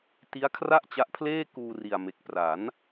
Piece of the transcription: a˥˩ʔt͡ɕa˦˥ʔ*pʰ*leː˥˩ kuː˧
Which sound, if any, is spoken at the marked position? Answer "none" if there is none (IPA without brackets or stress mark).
pʰ